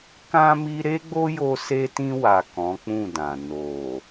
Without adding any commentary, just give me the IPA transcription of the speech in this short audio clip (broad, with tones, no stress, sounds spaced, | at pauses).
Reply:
k ã˧ m i˧ ɾ e˦ ɡ͡b o˦ j o˧ s e˧ t ĩ˧ w a˨ k ɔ̃˨˦ k͡p ũ˦˨ d ã˨ n o˨